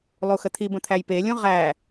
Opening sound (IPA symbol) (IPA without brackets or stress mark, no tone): lˠ